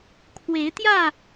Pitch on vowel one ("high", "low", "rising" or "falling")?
rising